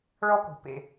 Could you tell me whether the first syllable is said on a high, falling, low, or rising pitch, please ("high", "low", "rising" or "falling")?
high